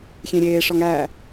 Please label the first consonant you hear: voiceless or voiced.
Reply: voiceless